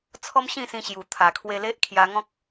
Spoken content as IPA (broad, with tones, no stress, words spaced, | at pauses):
t͡sʰɔ˦mɕĩ˥˧sĩ˧ ɕju˨˩ t̪ʰa˨˩kʰwe˧le˦ʔ kʰja˧ŋɔ̃˦k̚